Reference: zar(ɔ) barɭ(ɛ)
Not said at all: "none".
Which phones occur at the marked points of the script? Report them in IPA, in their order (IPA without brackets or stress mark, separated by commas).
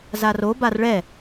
o, ɛ